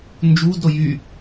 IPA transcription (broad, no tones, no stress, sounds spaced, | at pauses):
n d͡ʒ uː d ɾ o j y